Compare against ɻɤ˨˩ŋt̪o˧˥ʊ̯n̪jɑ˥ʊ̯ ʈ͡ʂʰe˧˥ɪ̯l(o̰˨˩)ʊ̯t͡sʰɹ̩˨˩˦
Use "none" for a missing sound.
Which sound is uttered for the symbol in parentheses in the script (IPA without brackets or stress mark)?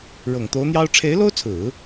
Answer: o˥